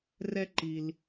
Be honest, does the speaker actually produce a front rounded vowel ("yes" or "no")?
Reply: no